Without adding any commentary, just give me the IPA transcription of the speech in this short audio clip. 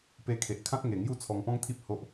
pe˧kʰe˨ʔkʰã˦t̚ŋe˨˩ ŋju˥˧t͡sʰɔ˧ŋpɔ̃˦ŋt̪ʰi˦p̚ ho˦ʔ

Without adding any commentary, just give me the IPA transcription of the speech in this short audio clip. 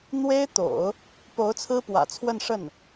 n̪we˥ɪ̯t̪o̰˨˩˦ʊ̯ | po˧˥ʊ̯ t͡sʰɹ̩˥pwä̰˨˩t͡sʰwə˥˧nʂə˥˩n

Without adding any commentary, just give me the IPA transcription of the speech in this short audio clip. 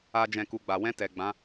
a˦d͡ʒɛ̃˦˨ ku˧ɡ͡ba˨ wɛ̃˧tɛ˨ ɡ͡bã˨˦

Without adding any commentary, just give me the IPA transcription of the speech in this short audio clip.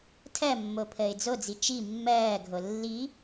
tʰɜmːopʰəːɪ̯ d͡zod͡zi t͡ʃi mːɜːɡʱo lːi

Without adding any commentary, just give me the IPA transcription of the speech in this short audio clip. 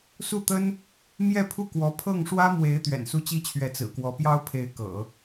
su˥˩t̪ə˥n | mjɛ˥˧pʰu˥˩kwɔ˧˥ pʰɤ˥˩ŋʂwä˥mwe˧˥ɪ̯ t̪ɥɛ̰˨˩nsu˥˩t͡ɕi˥t͡ɕʰɥɛ˧˥ t͡sɹ̩˨˩kwɔ˧˥pjɑ˥ʊ̯ pʰe˧˥ɪ̯kɤ̰˨˩˦

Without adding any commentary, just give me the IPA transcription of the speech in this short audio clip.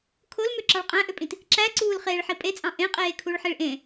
kʰolmøǁɑɭ qʼæ̃ʔøpʼĩt | ǁæǀuːl χeːɭħipʼet͡sʼɑ̃ ʔẽ qʼeːkʰuɭħiɭʔẽ

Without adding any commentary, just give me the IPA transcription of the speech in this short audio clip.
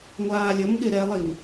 ŋʷaːlʲəmɠɪ ɾɛlˠim

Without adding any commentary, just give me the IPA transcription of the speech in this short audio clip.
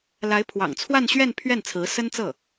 la˧˥ɪ̯pʰwɑ̰˨˩ŋt͡sʰwa˥˧nɕɥɛ˥˧n pʰɥɛ˥˩nt͡sʰɹ̩˧˥sə˥nt͡sɤ˥˩

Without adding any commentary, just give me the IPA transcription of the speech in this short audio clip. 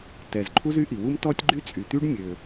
tɛ˩z ǃʰu˥zy˥ʔi˩ wu˥mtɔ˥tʲɡ͡ǃy˥ t͡sʼy˩t̪y˥ɖ mʲø˩

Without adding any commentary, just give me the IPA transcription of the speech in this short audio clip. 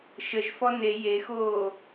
ʃəʒfɔ ne jexoː

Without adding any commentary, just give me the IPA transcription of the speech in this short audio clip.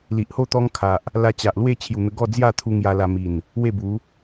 li˨ʔho˥˧ t̪ɔ˦ŋkʰa˨ʔ | la˧t͡ɕa˨ʔlwe˥˧ t͡ɕʰju˨˩n̪ə˧ ɡɔ˥˧d͡zja˥˧t̪ʰu˧ ŋja˧la˧mi˨˩n | we˥˧bu˨˦

